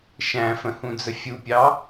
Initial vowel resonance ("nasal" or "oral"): nasal